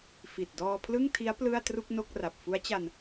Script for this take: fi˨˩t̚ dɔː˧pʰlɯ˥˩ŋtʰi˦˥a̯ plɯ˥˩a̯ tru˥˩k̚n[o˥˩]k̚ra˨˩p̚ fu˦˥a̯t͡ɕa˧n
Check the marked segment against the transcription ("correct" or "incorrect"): correct